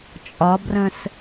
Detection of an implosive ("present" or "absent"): absent